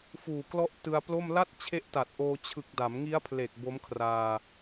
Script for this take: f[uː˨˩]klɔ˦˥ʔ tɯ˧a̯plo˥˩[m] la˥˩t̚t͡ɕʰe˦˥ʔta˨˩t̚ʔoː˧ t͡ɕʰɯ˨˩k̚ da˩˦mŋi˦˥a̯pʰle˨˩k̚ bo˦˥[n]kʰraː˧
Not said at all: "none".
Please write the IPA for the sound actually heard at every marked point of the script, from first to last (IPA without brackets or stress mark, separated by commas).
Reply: uː˨˩, m, m